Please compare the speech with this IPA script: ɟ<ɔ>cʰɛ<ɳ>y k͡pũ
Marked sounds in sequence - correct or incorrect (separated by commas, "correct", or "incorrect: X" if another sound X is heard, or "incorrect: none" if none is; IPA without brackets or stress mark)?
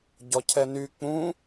correct, incorrect: n